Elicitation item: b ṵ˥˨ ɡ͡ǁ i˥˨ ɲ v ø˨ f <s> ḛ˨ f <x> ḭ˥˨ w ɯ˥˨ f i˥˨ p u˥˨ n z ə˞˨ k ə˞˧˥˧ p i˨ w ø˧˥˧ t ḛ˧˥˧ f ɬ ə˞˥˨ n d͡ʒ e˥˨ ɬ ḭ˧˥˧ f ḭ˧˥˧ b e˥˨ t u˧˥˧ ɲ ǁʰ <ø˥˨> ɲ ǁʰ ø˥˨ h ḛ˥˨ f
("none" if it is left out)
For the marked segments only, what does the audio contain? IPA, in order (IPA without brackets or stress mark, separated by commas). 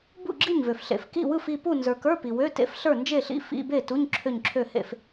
ɬ, k, ø˥˨